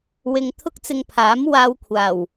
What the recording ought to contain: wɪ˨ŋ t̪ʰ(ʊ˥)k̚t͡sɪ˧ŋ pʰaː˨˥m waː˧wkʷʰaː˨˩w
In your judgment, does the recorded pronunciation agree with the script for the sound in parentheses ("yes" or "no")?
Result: yes